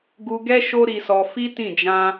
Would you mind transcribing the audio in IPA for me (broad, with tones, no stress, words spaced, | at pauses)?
ɡu˧ɡɛ˦ ʃo˦ɾi˧sɔ˧ fi˦tĩ˦˨ d͡ʒã˧